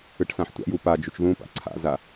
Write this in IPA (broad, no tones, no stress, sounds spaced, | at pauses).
ɯ ʈ s ã ħ tʷ a̰ j u p a d͡ʒ u t͡ʃ ð ũ p a̰ ǀʰ a̰ z a